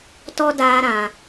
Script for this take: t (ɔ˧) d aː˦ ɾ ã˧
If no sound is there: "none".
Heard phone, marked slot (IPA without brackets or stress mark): ɔ˧